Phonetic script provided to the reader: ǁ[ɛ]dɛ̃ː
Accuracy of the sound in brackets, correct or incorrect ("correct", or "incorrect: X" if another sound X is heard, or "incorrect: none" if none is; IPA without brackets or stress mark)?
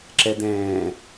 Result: correct